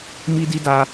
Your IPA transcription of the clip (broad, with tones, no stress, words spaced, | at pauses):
mi˦di˦da˦